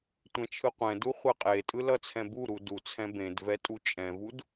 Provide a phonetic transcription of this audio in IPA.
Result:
tʷ ɛ̃ t͡ʃʰ ɯ qʷ ɛ̃ d u χʷ ɛ qʼ e tʼ ɯ l ʌ t͡sʰ ɛ̃ b u ɾ u d u t͡sʰ ɛ̃ b ẽ d v ɛ tʼ u t͡ʃʼ ɛ̃ v u d

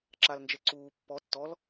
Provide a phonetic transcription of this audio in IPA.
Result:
ǁ a l n d͡ʒ e ǀ uː pː ɔ tː ɔ l

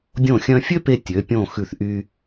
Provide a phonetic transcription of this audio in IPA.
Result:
dʲ õ˧˩ xʲ œ̃˧ fʲ ø˥ p e˧ tʲ ø˩˧ pʲ õ˧˩ x ʉ˧˩ θ ʔ y˧

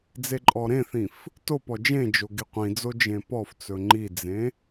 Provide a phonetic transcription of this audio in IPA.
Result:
d͡z e ǃʼ ɔ ɾ ẽ θ ĩ f | t o p ɔ d͡ʒ ẽ d͡ʒ o ɡ e qʷ ĩ d͡z o d͡ʒ ẽ p ɔ f t͡s ɵ ŋ͡ǃ i d͡z ẽ

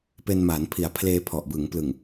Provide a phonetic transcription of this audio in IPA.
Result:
p e˧ n m a˩˦ n pʰ i˨˩ a̯ pʰ l eː˧ pʰ ɔ˨˩ ʔ b ɯ˩˦ ŋ p l ɯ˨˩ ŋ

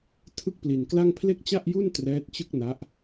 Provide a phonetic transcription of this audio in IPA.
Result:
tʰ ɯ˥˩ k̚ p l i˧ n k l a˥˩ ŋ pʰ l e˥˩ k̚ t͡ɕ a˥˩ ʔ j u˥˩ n t r ɛː˦˥ t̚ t͡ɕ ɯ˥˩ k̚ n a˦˥ ʔ

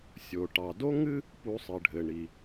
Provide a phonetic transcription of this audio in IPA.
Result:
sʲ o˩ ʈ ɑ˩ d o˦ ŋ ɨ˥ | p u˨ sˤ ɘ˩ ɖʱ ɘ˩ ɳ i˩

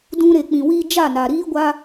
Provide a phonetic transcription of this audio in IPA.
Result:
d ũ˧ ɾ e˨ k͡p ĩ˨ w iː˧ d͡ʒ a˦˨ n aː˨ ɾ iː˦ ɡʷ a˦

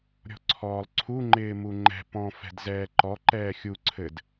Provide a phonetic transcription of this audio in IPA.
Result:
ɾʲ ɔ̤ ǀʰ ɔː lˠ ǀʰ u ŋ͡ǃ ɪː m u ŋ͡ǃ ɛ̤ p ɔ̃ f ɛ̤ d z ɛː ǃ ɔ ǃ ɛː xʲ u ǀʰ ɘ d

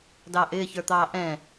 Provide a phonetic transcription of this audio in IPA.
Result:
d ɑː ʔ ɪː ç ə˞ t̪ ɑː ʔ ɛ̃ː

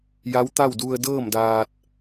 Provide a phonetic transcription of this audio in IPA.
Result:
j a˧˥ w t̪ a˥˨ w d u˧ ə̯ d ɤː˥˨ m d aː˧ t̚

